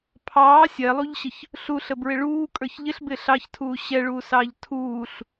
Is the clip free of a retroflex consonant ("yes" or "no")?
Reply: no